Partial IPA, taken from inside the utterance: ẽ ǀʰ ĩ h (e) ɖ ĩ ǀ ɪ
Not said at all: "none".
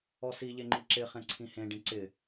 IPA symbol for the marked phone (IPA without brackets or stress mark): ẽ